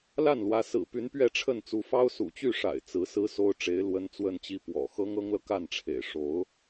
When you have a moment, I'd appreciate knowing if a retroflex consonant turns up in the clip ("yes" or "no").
yes